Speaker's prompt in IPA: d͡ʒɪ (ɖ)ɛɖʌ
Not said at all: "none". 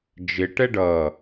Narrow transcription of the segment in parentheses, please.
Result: ʈ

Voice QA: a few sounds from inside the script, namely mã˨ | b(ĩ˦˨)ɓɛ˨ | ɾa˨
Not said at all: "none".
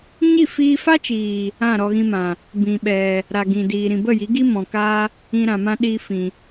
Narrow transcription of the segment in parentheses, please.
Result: ĩ˨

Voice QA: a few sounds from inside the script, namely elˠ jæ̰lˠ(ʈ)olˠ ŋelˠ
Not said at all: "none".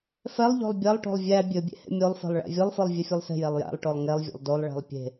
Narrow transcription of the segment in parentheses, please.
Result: ʈ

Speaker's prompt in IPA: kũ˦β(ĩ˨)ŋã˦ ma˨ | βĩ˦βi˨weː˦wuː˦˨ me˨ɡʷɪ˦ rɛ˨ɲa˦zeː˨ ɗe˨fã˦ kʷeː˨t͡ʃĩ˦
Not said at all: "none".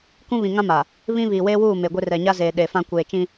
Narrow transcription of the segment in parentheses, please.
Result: ĩ˨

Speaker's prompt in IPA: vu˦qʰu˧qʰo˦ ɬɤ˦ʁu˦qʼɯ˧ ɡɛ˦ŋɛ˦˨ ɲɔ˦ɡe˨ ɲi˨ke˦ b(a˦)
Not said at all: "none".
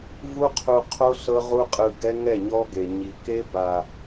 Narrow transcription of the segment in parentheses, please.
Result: a˧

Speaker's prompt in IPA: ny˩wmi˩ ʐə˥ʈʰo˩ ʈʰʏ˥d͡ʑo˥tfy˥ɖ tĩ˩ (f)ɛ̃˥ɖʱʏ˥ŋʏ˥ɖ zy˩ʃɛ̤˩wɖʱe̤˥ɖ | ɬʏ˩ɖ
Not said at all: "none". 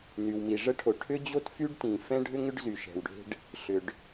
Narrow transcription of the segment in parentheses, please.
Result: f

